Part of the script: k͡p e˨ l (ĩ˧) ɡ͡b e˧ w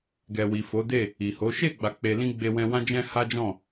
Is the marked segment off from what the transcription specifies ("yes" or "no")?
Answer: no